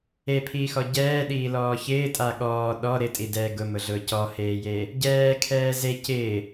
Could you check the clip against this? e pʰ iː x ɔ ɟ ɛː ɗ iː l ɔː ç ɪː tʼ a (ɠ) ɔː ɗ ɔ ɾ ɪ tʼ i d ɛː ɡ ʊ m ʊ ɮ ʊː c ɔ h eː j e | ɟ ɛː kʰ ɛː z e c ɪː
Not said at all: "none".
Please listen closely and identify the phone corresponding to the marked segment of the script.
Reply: ɠ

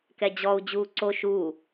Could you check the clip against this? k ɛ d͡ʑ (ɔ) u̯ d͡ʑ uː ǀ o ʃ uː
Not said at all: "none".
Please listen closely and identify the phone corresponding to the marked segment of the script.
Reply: ɔ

